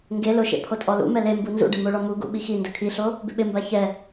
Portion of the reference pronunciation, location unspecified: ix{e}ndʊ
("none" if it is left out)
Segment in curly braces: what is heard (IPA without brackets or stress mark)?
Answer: i